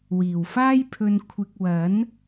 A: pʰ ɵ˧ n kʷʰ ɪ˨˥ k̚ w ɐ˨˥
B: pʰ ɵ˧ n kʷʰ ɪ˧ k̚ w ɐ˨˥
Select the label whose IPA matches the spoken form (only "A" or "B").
B